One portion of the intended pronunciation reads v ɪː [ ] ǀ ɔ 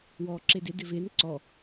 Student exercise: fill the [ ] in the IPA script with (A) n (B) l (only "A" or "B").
A